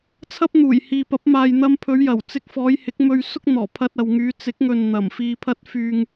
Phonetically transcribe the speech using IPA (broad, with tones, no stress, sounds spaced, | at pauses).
t͡sʰ ɐ˥ p̚ n̪ uː˨˩ j h iː˨ p ɐ˨˥ p̚ m aː˨ j n̪ ɐ˧ m pʰ ɵ˨˧ ɥ j ɐ˨˩ w t͡s ɪ˧ k̚ f ɔː˨˧ j h ɪ˨˥ k̚ m ɵ˧ ɥ s ʊ˥ k̚ n̪ ɔː˨˩ pʰ ɐ˧ t̚ ɐ˨ w ŋ yː˨˧ t͡s ɪ˨˥ k̚ ŋ ɵ˨ n n̪ ɐ˨˩ m f iː˧ pʰ ɐ˥ t̚ f yː˧ ŋ